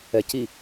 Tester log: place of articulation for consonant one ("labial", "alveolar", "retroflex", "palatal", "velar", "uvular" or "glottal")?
palatal